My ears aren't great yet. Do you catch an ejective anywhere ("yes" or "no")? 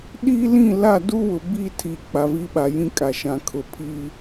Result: yes